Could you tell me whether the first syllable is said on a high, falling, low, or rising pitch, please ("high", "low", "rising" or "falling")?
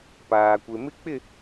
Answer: low